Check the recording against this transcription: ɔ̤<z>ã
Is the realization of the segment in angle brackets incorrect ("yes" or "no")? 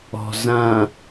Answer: no